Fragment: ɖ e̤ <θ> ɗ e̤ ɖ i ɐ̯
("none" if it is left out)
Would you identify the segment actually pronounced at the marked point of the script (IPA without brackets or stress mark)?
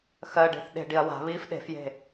θ